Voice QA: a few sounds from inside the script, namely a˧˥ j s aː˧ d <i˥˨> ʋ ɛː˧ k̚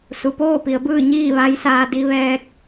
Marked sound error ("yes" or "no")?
yes